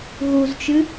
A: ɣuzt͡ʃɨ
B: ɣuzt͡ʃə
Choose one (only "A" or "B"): A